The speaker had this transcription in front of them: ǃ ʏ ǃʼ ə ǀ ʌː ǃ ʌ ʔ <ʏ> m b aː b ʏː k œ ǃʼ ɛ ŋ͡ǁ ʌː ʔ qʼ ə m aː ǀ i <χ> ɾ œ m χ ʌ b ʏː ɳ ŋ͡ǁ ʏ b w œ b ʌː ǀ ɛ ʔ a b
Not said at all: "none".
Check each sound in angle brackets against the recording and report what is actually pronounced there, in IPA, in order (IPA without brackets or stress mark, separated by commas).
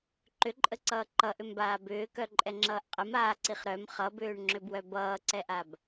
ʏ, χ